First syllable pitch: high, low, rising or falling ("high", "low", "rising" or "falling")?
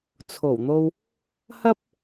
low